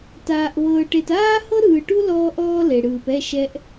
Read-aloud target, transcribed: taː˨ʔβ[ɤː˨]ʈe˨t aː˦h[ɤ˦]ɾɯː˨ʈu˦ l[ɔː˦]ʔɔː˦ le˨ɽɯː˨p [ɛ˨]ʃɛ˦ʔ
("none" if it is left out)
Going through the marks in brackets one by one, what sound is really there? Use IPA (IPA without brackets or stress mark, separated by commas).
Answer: ɤː˨, ɤ˦, ɔː˦, ɛ˦˨